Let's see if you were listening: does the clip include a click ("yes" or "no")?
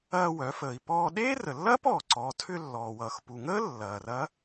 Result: yes